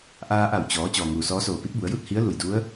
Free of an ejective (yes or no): yes